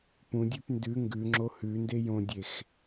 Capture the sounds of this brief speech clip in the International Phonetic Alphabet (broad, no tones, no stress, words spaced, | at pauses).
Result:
pũdʲʉp ndʉ ŋɡʉŋ͡ǁo hʉnde jõdʲex